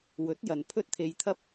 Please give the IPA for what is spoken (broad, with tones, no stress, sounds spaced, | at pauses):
w ɵ˨˥ t̚ j ɐ˨ n pʰ ɵ˥ t̚ t̪ʰ e˧ j t̪ʰ ɐ˥ p̚